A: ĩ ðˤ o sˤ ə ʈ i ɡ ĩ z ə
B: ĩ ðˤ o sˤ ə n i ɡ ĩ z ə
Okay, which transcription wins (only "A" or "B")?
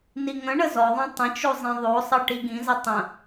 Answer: A